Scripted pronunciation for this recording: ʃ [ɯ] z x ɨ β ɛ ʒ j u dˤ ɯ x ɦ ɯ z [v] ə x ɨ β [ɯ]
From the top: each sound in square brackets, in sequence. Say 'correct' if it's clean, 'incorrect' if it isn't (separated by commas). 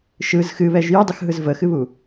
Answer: correct, correct, incorrect